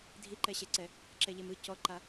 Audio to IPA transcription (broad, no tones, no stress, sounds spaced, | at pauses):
dʱ i ǃ ɛ ɕ e ǀ ɛ | ǁ ɛ ʎ e m ɯ c ɔ ǃ a